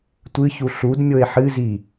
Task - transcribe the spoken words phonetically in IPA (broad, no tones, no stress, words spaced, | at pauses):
tʷɨçu ɬud mʲoe̯ħɨzi